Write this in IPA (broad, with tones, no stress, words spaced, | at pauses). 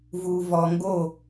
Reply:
vu˨vɔ˨ŋɡo˦˨